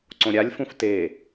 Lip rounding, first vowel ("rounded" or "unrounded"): rounded